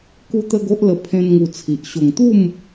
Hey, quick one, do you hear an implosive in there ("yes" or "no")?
no